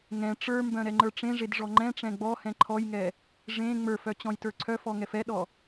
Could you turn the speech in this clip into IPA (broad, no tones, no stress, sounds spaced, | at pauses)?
ŋ ɛ̃ ʈ͡ʂ ə˞ m b œ̃ ɾ ɛ ŋ͡ǃ ə˞ ʈ͡ʂ ẽ ʐ e d ʐ ɔ ŋ͡ǃ ɛ̃ ʈ͡ʂ ɛ̃ ɡ͡b ɔ h ɛ̃ ǃʰ ɔ j ŋ ɛ | ʐ ẽ ŋ͡m ə˞ f œ t͡ɕ ɔ̃ j t ə˞ ǀʰ œ f ɔ ŋ ɛ f ɛ ɗ ɔ